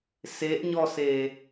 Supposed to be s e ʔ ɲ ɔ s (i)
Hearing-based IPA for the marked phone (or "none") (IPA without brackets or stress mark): e